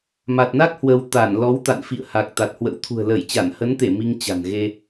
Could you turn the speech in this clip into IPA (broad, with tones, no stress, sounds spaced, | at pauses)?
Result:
m a˨˩ t̚ n a˦˥ k̚ h w ə˧ w t̪ a˧˩ n l ɔ˨˦ w t̪ a̰˧˨ n f ḭ˧˨ ə̯ h a˨˩ k̚ t̪ a˨˩ t̚ h w ə̰˧˥ w t̪ʰ ṳ˨˩ ə̯ l ə˧˩ j t͡ɕ a˧˩ n h ə˨˦ n t̪ e˧˩ m i˧ ŋ t͡ɕ a̤˨˩ n ɣ e˧